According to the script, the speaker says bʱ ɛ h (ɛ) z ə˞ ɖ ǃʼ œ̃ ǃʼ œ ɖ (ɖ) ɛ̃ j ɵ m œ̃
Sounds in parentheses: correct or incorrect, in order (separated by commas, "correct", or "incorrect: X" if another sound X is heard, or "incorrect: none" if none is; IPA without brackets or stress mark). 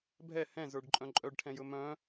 incorrect: ɛ̃, incorrect: ʈʰ